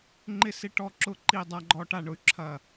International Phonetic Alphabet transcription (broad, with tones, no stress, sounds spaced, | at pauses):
ŋ͡ǃ ɪ˥˨ s ɪ˥˨ ʈ ɔ˥˨ ǁ ʊ˥˨ ǃ i˥˨ dˤ a˦ ɡ͡ǃ ɔ˦ ʈ a˥˨ ɳ ʊ˦ y̯ ǁʰ ɐ˥˨